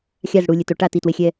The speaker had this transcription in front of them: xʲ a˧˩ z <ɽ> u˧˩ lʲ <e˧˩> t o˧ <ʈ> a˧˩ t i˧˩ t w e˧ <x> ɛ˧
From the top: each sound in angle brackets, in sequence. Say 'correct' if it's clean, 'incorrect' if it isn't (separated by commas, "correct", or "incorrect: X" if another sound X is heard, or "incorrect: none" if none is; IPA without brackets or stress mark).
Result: correct, correct, correct, incorrect: xʲ